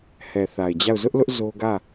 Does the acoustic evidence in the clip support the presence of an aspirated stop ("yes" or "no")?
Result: no